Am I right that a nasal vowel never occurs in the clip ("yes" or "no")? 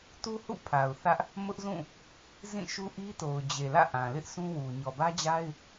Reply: no